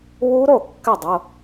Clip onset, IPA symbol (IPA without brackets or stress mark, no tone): w